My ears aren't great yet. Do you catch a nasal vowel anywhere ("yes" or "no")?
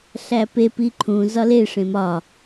yes